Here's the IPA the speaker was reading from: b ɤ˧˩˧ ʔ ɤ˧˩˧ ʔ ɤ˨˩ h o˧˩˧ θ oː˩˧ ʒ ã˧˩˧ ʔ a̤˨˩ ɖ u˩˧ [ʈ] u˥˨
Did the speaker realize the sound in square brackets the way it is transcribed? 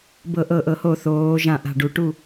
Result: yes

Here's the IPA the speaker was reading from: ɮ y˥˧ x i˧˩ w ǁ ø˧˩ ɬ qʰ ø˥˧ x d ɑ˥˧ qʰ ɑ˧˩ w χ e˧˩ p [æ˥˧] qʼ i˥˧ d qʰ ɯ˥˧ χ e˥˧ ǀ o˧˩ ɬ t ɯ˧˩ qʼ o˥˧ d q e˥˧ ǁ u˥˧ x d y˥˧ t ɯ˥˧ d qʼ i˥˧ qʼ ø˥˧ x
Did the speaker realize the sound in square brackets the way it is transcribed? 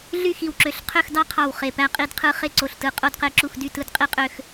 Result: yes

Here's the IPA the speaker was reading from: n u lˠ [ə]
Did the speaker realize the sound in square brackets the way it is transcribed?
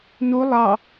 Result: no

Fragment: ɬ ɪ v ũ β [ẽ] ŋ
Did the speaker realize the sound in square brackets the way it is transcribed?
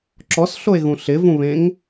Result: yes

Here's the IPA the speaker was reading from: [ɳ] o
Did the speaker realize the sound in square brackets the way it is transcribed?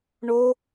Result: yes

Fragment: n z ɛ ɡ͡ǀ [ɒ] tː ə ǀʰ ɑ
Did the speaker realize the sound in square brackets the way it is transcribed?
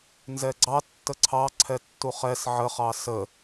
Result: no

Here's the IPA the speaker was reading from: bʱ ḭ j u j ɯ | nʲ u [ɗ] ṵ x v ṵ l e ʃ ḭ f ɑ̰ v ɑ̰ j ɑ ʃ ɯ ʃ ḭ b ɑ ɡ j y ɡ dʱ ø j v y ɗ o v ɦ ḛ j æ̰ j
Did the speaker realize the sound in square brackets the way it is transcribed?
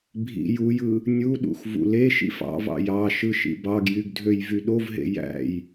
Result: yes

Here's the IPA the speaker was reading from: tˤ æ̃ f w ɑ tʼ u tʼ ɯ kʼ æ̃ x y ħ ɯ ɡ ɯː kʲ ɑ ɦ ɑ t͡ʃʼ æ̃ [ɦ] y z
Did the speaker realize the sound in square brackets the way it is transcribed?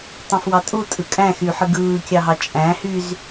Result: no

